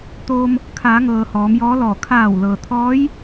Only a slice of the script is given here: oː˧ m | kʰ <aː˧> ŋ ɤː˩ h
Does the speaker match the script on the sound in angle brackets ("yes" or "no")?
no